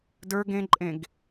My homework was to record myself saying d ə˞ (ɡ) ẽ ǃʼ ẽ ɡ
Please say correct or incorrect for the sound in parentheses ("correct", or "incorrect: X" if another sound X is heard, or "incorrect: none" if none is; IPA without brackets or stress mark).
correct